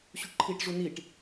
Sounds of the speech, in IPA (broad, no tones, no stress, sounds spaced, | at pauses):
ɕ u ʈ ǃʰ iː ʈ ʐ u n i ʈ